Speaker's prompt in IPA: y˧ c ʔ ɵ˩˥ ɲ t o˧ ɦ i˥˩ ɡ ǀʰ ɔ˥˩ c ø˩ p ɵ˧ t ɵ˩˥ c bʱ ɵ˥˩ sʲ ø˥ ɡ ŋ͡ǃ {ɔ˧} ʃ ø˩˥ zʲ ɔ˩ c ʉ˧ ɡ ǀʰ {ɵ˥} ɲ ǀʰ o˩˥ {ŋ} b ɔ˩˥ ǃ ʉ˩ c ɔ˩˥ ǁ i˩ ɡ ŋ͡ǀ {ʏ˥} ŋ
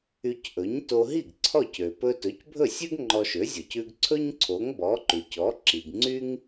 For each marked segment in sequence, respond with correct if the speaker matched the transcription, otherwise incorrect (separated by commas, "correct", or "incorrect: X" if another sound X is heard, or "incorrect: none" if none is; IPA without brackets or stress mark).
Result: correct, correct, correct, incorrect: y˥